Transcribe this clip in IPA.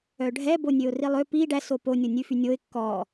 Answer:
œ ɖʱ ɛ b o nʲ ø ʊ̯ r i lˠ ø p i ɖ æ s o p o nʲ o nʲ ʉ f y nʲ o ɪ̯ kː ɔ

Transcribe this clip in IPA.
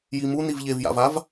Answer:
j i m u n i v ʎ e v j a̰ v a v

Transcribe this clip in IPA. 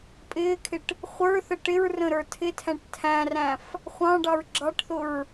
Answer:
pʼ ɪː kʰ ɪ ʈ | χʷ ə˞ θ ə ʈ ɪ ɹ r ə̃ ɾ ə˞ tʰ ɪ tʰ æ̃ ʈ tʰ æ̃ r æ̃ f | χʷ ɑ̃ ɖ ɑ ɹ ɡ͡ǁ ɑ ʈ θ ʊ ɹ

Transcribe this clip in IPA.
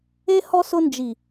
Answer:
e˦ h ɔ˦ s ʊ˧ n d͡ʒ i˨

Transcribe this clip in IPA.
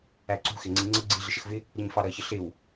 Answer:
æ ǀ ṳ x ɪ ŋ͡ǀ i ŋ͡ǀ ə ɡ͡ǀ i ɮ ɪ ʃ ə x v ɪ | ɾ ɪ ɲ f ɑ ɾ ʌ ç ə ɬ ɪ w

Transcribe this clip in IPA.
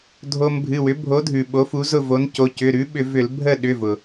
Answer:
dʱ o˦ m bʱ ɨ˩˧˩ w ʏ˨˥ bʱ o˨˥ dʱ ʉ˩ ɓ o˨˥ f u˨˥ z ʊ˦˨ v o˨˥ n c o˩˧˩ c ʏ˩˧˩ ɾ ʉ˨˥ ɓ ʏ˧˩˧ v ʏ˧˩˧ l bʱ ə˦˨ ɗ ʏ˩˧˩ v ʊ˩

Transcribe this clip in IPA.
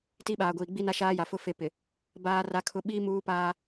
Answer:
t i˦ ɓ aː˨ ɡʷ iː˨ ɡ͡b i˦ n a˦ ʃ aː˦ j a˨ f ʊ˦ f e˦ p ɪ˨ | b aː˦ r a˦ kʰ ʊ˦ ɓ iː˦ m uː˦ p aː˦

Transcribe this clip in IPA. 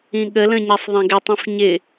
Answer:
ĩ ɠ ə l ə̃ ɲ ɛ sˤ ðˤ ɛ̃ ɡ ɪ tˤ ĩ f ɲ ɪ

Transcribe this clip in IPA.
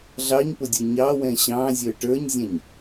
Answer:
ɮ ɑ ɲ p ʊ dʲ ə˞ ɲ ɑ w ɛ̃ ɕ ɑ̃ zʲ ə˞ ʈ ə˞ ɲ zʲ ɛ̃ ɲ

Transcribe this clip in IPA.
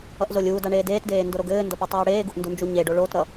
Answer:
ʌ ʔ z o lʲ uː d a ɳ eː d eː t d eː n d o ɾ o ɡ ɘː n d ʌ p u tˤ uː ɽ eː ɡ u ʔ n d u n d͡ʒ u ɲ e ɖ o ɭ oː t ɾ ʌ

